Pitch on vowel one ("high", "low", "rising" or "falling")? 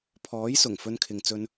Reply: rising